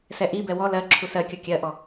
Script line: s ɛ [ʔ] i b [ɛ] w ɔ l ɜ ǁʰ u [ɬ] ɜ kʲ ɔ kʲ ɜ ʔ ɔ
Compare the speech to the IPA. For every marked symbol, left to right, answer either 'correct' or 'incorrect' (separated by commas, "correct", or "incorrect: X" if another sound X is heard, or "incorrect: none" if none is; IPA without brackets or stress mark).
correct, correct, incorrect: s